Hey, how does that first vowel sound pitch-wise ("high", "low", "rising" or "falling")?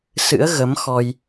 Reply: rising